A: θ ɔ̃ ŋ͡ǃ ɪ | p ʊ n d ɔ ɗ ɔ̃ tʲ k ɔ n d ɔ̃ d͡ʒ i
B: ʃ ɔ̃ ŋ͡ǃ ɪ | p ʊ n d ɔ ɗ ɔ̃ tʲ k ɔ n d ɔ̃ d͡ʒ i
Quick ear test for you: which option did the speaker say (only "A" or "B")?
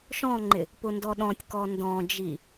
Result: B